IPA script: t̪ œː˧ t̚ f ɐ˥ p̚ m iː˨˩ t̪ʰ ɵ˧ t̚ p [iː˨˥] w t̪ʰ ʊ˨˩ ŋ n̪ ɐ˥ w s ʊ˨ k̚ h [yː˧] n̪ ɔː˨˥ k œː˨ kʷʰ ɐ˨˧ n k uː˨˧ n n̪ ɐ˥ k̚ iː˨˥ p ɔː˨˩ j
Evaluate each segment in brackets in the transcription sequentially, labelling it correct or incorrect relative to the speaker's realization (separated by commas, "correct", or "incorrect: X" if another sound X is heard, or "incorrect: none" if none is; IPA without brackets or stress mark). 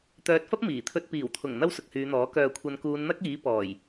incorrect: iː˨˩, incorrect: yː˨˧